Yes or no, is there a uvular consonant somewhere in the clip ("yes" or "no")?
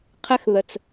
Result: yes